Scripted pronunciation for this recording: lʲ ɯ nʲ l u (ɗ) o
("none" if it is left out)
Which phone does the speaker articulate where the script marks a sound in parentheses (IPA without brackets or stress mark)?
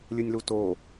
t